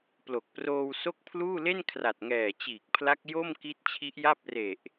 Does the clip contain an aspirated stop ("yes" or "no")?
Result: yes